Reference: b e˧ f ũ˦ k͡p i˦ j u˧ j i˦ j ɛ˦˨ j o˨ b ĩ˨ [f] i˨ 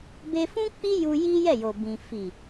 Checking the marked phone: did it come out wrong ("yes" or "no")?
no